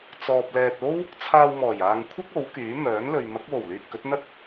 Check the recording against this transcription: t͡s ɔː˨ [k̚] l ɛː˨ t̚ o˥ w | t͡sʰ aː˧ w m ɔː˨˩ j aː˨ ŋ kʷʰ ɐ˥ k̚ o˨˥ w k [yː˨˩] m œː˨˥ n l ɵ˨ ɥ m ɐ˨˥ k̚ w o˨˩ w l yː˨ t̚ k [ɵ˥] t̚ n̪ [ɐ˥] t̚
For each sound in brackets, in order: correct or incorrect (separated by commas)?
incorrect, incorrect, incorrect, correct